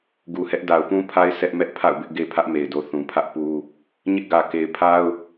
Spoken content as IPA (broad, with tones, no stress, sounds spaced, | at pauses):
ɡ u˨ h ɛ˦ ʔ d a˨ ʊ̯ p ũ˦ pʰ a˦ ɪ̯ s ɛ˦ ʔ m ɛ˦ ʔ pʰ a̰˦˨ ʊ̯ b ɪ˦ ʔ ɡ e˦ pʰ ä˦ ʔ m e˨ ɪ̯ d o˨ θ ũ˨ pʰ ä˦ ʔ p u˦ | ɲ ɪ˦ ʔ ɡ ä˨ k e˨ ɪ̯ pʰ a˦ ʊ̯